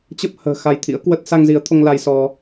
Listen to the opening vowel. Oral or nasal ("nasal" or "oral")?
oral